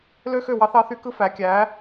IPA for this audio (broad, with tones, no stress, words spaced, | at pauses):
lø˥xø˥˩ wɑ˥θɑ˥θy˥ kɯ˥fæ˩˥kʲæ˩˥